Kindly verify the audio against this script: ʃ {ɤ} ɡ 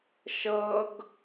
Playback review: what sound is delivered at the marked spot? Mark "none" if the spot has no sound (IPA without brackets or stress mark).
ɤ